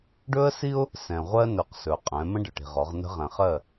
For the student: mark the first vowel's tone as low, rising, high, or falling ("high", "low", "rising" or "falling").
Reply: high